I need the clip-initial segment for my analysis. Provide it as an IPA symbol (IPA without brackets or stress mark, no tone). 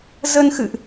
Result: z